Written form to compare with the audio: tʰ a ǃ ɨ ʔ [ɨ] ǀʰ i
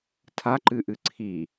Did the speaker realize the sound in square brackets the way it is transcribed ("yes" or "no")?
yes